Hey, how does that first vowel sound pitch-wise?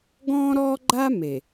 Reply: high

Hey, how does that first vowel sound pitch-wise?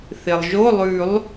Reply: low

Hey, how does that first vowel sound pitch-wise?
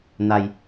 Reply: low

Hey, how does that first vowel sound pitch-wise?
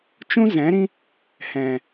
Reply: high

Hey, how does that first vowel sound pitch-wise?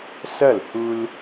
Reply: falling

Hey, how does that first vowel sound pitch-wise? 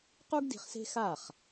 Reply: high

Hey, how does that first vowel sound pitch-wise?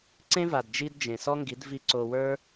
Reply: high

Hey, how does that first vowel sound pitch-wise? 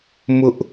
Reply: high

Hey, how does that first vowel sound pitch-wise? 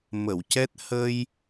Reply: low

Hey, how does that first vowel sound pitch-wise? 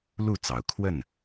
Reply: falling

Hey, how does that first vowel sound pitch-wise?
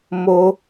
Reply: high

